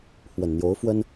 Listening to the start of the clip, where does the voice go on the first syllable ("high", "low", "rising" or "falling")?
low